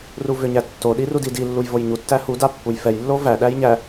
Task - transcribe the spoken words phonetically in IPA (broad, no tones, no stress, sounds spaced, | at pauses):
r u v ʏ ɲ æ tː o ɗ i r u d i d i lː u j v o j ɲ u tː æ h u d a pː u j f ɛ j lː o v æ ɗ æ j ɲ æ